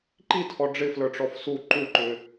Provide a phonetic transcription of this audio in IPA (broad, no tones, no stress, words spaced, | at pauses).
ǃitʰɔ ɖ͡ʐɪflə˞ʈ͡ʂɔf su ǃuǃʏ